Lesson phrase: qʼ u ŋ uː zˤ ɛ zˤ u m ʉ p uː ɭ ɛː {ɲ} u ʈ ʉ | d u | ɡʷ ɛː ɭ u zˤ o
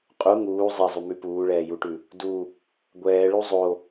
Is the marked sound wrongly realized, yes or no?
yes